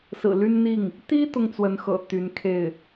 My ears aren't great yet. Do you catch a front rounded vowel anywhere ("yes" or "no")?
yes